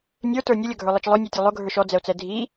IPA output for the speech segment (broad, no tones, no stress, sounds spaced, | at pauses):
nʲ ə˞ t ə˞ nʲ ʌ lʲ ʌ ɡʱ ə˞ lˠ i t͡ʃ lˠ ʊ nʲ ə˞ tʲ ʊ lˠ ʊ ɡʱ ə˞ ʃ ɔ d͡z ɛ o̯ t͡s ɛ dʱ i